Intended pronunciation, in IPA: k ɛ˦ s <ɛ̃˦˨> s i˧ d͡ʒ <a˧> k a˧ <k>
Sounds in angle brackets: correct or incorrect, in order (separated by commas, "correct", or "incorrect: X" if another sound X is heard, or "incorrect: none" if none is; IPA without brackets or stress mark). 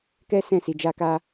correct, correct, incorrect: none